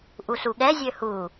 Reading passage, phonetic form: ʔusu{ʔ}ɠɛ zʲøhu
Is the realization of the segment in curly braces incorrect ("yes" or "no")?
yes